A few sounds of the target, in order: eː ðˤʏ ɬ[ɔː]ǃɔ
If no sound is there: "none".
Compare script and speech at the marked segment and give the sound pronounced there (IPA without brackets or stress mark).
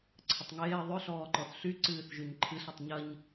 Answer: ɔː